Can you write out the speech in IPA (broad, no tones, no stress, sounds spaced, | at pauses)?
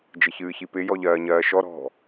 d͡ʒ ɪ ç ɨː ç i p ɪ j ɔ ʎ ɜː ɲ ɜː ʃ ɔ ɾ ɔ̤